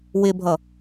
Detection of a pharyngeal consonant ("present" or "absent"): absent